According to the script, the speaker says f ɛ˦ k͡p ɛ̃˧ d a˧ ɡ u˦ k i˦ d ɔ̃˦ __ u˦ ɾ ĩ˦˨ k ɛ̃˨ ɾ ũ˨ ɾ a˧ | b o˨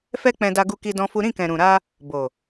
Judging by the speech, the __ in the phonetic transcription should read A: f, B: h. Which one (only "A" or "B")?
A